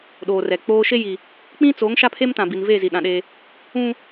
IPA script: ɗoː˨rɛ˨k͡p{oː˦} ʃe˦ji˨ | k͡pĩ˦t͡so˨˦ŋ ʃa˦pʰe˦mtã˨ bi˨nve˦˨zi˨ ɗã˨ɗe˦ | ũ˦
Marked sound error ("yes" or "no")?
no